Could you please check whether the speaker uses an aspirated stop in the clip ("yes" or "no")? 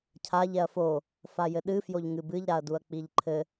yes